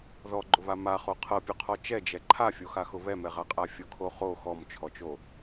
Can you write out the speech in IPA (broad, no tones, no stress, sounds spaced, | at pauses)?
ð ɔ ɡ͡ǃ ʊ β a m a χ o qʰ ɤ pʲ ʊ qʰ ɔ t͡ʃ ɛ d͡ʒ ɛ ǃʰ a fʲ o x a x ʊ β ɛ m ɛ ʁ a qʼ a fʲ ʊ kʰ o χ o x ɔ m t͡ʃʰ ɔ t͡ʃ o